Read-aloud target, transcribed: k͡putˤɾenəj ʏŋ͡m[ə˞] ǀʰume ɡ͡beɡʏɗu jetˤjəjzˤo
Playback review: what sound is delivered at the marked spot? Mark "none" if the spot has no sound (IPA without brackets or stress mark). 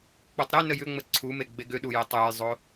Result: ə